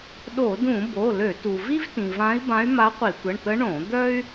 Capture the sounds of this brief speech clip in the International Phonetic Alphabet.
ɗ o˧˩˧ d ũ˧˩˧ b o˩˧˩ l ø˧˩˧ t u˩ v i˥ v t ĩ˩ v ã˧˥ i̯ b ã˧˥ y̯ m a˧˥ qʷ i˧˩˧ tʷ ə˩˧˩ ɳ t̪ ə˧˥ ɳ õ˧˩˧ d̪ œ˥ y̯

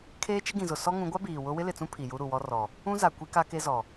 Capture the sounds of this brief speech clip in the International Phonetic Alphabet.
kʰ eː˦ t͡ʃ ɪ˦ ɡ ĩ˨ z ʊ˨ s ɔ˦ ŋ ũ˨˦ ɡʷ a˦ b iː˨ w ʊ˦ w ɪ˦ l ɪ˨ t͡s ũ˦ pʰ i˨ j u˦ ɾ u˨ w ɔ˦ r ɔ˨ | ũ˦ z a˨ kʷ i˦ k a˦ k e˦ z ɔ˨

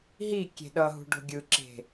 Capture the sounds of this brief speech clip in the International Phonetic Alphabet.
ɦ i kʲ e̤ ɗ ʌ ɦ ṳ ɖ o̤ ɡʲ ɯ ǁ e̤

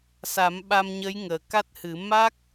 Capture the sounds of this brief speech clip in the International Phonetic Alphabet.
s a˨˩˦ m ɓ a˧ m ɲ ə˧˥ j ŋ əː˨˩ k a˦˥ t̚ h ɨ˨˩˦ m a˦˥ k̚

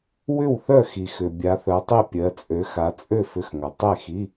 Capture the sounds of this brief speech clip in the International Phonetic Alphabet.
w ʏ˥˨ w θ œ˥˨ x i˨ x ʏ˨ bʲ a˨˦ θ œ˨˦ tˤ i˥˨ pʲ ɜ˨˦ t͡sʼ ø˨˦ x a˨˦ t͡sʼ ø˥˨ f ʏ˧˥˧ x ŋ œ˨ tˤ e˥˨ x i˧˥˧

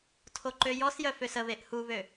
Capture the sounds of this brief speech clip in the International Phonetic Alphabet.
tʰ o ǃ ø j ɔ s j œ f ø s ə β e ʔ h u β ø

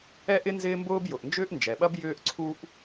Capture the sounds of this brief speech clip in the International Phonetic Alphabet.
ɛ˥ ʔ ɪ˥ n z ɪː˥ m b ʊː˥ b j ʊ˩ ʔ n d͡ʒ ʏː˥ ʔ n d͡ʒ ɛ˩ ɓ ɐ˥ b j ʏː˥ ʔ ǀʰ u˥ ʔ

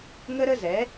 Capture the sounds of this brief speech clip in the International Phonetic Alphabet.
ŋ ə˦ ɾ ə˦ z ɛ˨˦

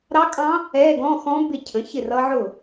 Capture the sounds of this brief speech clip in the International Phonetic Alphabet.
ɾ ɑ˦˥ kʼ ɑ̃˦˥ | ɛ˧˥˧ ɡ ɔ̃˧˥˧ x ɔ̃˦˥ b ɪ˥˩ cʰ ə̃˨˥ ç ɪ˥˩ r ʌ˦˥ ʕ ʊ˥˩

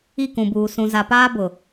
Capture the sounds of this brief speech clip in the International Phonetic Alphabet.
i˦˨ k ũ˨ b uː˨ s ũ˨ z a˨ p aː˦ b ʊ˨

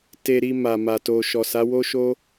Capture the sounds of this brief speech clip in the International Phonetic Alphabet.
t e˧ ɾ i˧ m a˨ m a˨ t o˨ ʃ ɔ˨ s a˨˦ w o˦ ʃ o˦

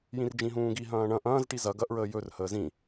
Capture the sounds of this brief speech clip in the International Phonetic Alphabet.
j ĩ r d͡ʒ ĩ ɦ ũː ɡ i ɦ ɐ̃ː ɳ ɐ̃ ʔ ɐ̃ː z ʈ i z ɐ ɡ ɐ ʔ ɹ əː j ɵ r h əː z ĩ

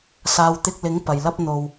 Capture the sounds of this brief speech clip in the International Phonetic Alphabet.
s aː˨ w t̪ ɪ˧ k̚ l ɪ˨˥ ŋ p ɐ˨ j l ɐ˥ p̚ n̪ o˧ w

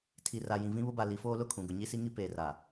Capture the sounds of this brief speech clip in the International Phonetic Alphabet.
tʰ i˨ r a˨ j ĩ˨ v ĩ˦ β ʊ˦ b a˨ l i˨˦ f oː˦ l ʊ˦˨ kʰ ũ˨ ɡ ʊ˨ ɲ i˦ s i˦ ŋ i˦ p eː˨ r a˨

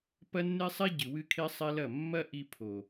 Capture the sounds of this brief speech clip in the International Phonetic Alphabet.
p ɐ˦ nː e˦ sˤ e˦ ɟ ɨ˨ w ɨ˦ kʰ e˦ sˤ e˦ l ɐ˦˨ mː ɐ˦ ʔ i˧ pʰ o˨

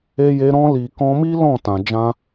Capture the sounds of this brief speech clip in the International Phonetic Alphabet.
e˧ j e˧ ɾ ɔ̃˦ l i˧ k ɔ̃˧ m i˦ l ɔ̃˦˨ t ã˧ d͡ʒ ã˦

